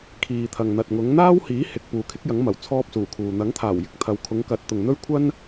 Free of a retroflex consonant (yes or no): yes